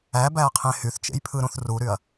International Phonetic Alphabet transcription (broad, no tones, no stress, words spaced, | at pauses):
æbæɐ̯qʰẽ hyθt͡ʃḛjpʰɯɾũθ ruɾyɐ̯